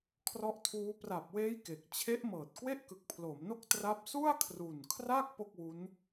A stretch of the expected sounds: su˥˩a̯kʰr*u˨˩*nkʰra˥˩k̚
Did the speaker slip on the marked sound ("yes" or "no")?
no